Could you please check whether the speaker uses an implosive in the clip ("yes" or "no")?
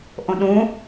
yes